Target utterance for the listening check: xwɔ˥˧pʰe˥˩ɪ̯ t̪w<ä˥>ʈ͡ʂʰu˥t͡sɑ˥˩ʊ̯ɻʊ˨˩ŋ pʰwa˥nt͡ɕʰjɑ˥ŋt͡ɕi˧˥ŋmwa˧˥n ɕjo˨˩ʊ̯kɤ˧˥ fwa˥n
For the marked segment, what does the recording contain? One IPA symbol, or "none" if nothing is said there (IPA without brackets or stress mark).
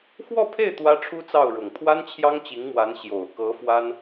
ä˥